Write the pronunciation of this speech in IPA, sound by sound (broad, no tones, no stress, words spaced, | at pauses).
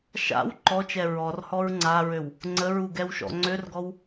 ʃa̰w ǃɔt͡ʃɛ ɹɔrhɔɹ ŋ͡ǀaɹøw | ŋ͡ǀəɹuɡɛwʃɔ̰ ŋ͡ǀørɡɔw